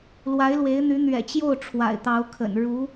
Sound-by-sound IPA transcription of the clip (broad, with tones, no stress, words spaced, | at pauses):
lwa˧˥ɪ̯lwe˧˥ɪ̯n̪y˧˥ n̪ɥɛ̰˨˩t͡ɕjo˥˩ʊ̯ ʈ͡ʂʰwa̰˨˩ɪ̯t̪ɑ˧˥ʊ̯kʰə̰˨˩n ɻu˧˥